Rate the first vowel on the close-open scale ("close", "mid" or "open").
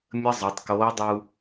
mid